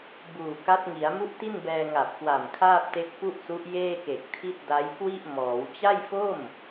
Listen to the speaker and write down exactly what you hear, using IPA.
buː˨˩ka˦˥t̚ŋi˩˦a̯ mu˥˩ʔti˥˩nbɛː˧ ŋa˨˩p̚kwa˨˩mkʰaː˥˩p̚te˦˥k̚ pu˥˩ʔsu˦˥ʔ jeː˥˩ke˨˩k̚ tʰi˥˩t̚ da˦˥jkwi˥˩ʔmɔː˩˦w t͡ɕa˥˩jfo˥˩m

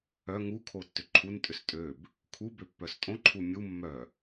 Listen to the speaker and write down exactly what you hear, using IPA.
œ ŋu kʰotːʏǃʰuntʼʏs tʼøb | kʰubø pːœstʼõǃʰu mʲu mːœ

